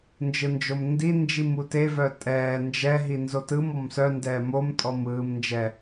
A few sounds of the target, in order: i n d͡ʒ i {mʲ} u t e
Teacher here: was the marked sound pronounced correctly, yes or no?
no